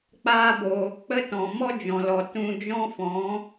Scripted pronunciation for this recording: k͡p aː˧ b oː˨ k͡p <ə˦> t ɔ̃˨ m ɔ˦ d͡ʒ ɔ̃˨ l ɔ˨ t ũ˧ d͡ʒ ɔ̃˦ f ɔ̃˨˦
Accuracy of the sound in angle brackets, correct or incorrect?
correct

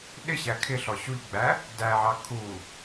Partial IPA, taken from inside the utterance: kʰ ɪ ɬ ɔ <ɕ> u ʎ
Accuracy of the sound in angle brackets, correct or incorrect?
correct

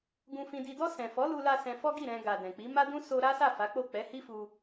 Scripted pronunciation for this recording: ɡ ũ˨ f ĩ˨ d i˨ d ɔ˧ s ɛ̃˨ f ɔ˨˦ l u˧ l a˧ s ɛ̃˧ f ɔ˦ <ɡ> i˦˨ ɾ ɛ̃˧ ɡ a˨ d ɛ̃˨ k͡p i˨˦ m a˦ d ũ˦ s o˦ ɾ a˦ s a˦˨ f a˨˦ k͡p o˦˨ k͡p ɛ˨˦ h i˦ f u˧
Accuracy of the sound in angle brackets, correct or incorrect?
correct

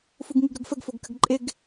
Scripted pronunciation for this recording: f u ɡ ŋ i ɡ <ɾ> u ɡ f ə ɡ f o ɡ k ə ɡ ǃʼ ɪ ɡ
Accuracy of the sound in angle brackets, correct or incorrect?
correct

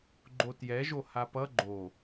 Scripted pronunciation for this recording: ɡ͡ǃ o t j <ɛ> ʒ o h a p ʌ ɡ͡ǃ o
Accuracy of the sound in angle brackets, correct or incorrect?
correct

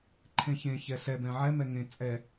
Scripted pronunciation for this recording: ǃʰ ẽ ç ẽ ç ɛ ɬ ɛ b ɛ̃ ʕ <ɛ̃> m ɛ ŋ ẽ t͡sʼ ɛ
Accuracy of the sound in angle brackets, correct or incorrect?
incorrect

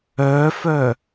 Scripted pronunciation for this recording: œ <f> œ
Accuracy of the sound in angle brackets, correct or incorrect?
correct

